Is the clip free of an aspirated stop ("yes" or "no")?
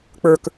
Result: yes